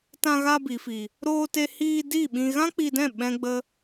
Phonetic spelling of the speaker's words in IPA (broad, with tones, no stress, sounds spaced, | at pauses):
t ã˧ ɣ a˧ b i˨ f i˨ | ɾ oː˧ t e˧ h iː˧ d i˦˨ ɓ ĩ˧ ɣ ã˦ k͡p i˧ d ɛ̃˦˨ ɓ ɛ̃˦ ɡ͡b ə˦